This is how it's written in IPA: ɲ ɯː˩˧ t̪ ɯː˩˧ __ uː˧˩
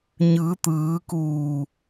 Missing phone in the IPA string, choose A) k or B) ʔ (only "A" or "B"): A